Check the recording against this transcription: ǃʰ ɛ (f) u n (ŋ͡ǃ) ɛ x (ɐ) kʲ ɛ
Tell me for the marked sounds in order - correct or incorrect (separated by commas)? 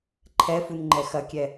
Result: correct, correct, correct